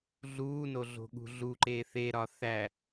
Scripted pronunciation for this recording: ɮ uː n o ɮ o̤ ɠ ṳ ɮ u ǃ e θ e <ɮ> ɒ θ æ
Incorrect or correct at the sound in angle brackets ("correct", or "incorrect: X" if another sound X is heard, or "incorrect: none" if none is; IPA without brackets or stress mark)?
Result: incorrect: ɾ